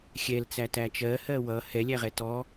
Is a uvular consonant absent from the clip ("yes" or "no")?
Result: no